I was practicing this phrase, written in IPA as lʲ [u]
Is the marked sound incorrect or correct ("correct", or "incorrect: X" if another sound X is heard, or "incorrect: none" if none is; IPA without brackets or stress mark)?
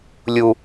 correct